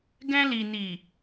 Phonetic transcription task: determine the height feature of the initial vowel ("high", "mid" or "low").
mid